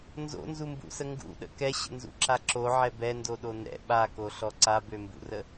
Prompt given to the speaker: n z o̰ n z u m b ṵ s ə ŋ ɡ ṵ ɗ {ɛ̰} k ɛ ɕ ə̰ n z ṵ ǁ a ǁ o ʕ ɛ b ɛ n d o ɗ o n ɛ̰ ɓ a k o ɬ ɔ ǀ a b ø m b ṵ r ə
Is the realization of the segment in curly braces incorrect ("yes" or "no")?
yes